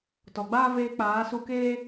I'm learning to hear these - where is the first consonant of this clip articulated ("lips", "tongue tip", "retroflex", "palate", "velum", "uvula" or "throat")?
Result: tongue tip